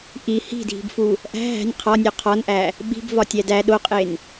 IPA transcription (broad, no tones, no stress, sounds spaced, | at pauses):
ʔ i h i̤ dʱ i̤ b f u | ʔ æ̤ ɦ æ̤ nʲ qʰ ɒ nʲ o qʰ ɒ n ʔ æ | ɓ i̤ b v ɒ tʲ æ d æ ɗ o qʼ e n